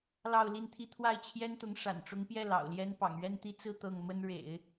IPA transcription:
lɑ˥˧ʊ̯li˥˧nt̪ʰi˥˧ t̪ʰwa˥˩ɪ̯t͡ɕʰjɛ˥nt̪ʊ˧˥ŋ ʂa̰˨˩nʈ͡ʂʊ˧˥ŋpjɛ˥˩ lɑ̰˨˩ʊ̯ljɛ˥npɑ̰˨˩ŋ ɥɛ˥˧nt̪i˥˧ t͡sɹ̩˥˧ t̪ɤ˥˩ŋ mə˥nɻḛ˨˩˦ɪ̯

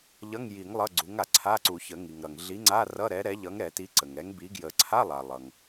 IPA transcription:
ʎʌ˧˥˧ŋji˨˩˦ŋ lˠʌ˧˥˧ɡ͡ǀu˨˥ŋa˩ ǀʰa˧˥˧ǀu˨˩˦çə˨˩˦ ŋi˩ŋɾʌ˩ŋɮi˨˥ŋ͡ǀa˧˥˧ rʌ˧˥˧ɾɛ˨˥ ɾɛ˨˥ʎʌ˨˥ŋɾɛ˨˩˦ti˨˥ ǀə˩ŋɛ˨˥ŋbi˨˥ɡjə˨˩˦ ǀʰa˧˥˧lˠa˩ lˠʌ˩ŋ

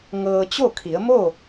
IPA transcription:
ŋɤː˧ t͡ɕo˥˨kʰi˩˧ə̯mo˥˨

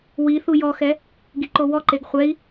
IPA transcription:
wiθu jɔxɛ | ɡiǃowɔǃeɡ χʷɛi̯

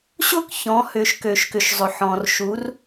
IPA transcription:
ɕʊ˥˨kçɔ̃˩˧ hʏ˩ʃ kø˩ʃkʏ˩ʃzˤʊ˩ħɔ̃˩r ʃu˩˧r

